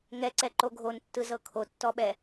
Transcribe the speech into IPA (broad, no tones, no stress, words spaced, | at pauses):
ŋɛǀɛǃo ɡʱontːɯzɤ kʰotːɔɓɛ